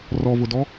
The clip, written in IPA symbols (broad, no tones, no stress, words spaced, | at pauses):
rɔvʊdɔ